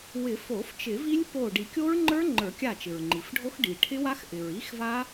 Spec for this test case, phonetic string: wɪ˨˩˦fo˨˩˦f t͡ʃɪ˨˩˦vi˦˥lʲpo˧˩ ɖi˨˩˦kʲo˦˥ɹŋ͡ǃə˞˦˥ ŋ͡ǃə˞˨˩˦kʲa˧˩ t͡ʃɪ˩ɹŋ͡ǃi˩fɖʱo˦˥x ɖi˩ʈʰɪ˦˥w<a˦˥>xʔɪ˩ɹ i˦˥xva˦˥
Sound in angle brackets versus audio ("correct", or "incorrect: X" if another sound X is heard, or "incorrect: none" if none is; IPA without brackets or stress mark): correct